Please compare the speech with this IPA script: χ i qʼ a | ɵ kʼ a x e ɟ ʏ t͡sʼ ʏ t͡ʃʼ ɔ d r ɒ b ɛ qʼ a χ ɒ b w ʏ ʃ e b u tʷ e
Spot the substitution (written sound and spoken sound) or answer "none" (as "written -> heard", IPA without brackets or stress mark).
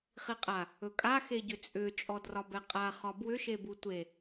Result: none